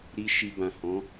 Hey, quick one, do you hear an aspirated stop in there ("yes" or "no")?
no